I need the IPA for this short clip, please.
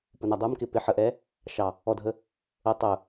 p ʊ n æ dˤ ə˞ m k ɪ p ɪ ħ ə ʔ ɛ | ʃ ɑ | ɔ dʱ ə | ə tˤ ʊ

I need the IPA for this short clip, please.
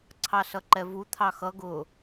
ǀʰ ɑ s ʌ ǃ ɛ v u t̪ʰ ɑ x ʌ ɡ ʊ

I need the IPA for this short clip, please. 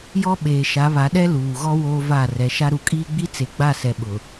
j ɔ˦ ɓ eː˨ ʃ a˨˦ β a˨˦ ɗ ɛ˦ l uː˨ ɣ ɔ˦ w oː˦ v a˦˨ r ɛ˨˦ ʃ a˦ ɾ u˨ kʼ iː˦ ɡ͡b i˦ t͡s e˨ ɡ͡b a˦˨ s ɛ˨ ɓ ʊ˨

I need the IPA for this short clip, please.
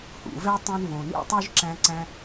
h ṵ˨ v ɛ˦ tˤ õ˦ n v õ˨ n ḭ˦ tˤ y˦ ʒ ǁ æ̃˧ ǀ æ̃˧

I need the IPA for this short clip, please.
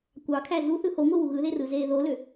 kʷ ɑ kʰ æ z u θ ɯ h o ŋʷ ɯ w u ɣ ɯ ð e r ɯ z eː ð o l ø

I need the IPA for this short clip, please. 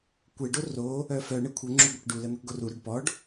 kʷ ɛ ɖ o r o | œ f œ ɳ ə kʷʰ ə ŋ͡ǁ u ɡʷ ɛ k ɖ u l ə n̪ ə k ɡ o r u ɾ œ ɖ p ɔ ɖ

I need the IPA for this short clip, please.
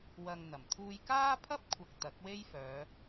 w ɐ˨ ŋ n̪ ɐ˨˩ m t̪ʰ uː˧ j k aː˥ pʰ ɐ˥ p̚ kʷʰ ɐ˨ k̚ t̪ ɐ˨˥ k̚ w e˥ j f œː˨˧

